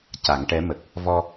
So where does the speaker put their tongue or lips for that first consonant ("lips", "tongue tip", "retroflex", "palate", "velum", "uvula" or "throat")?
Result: palate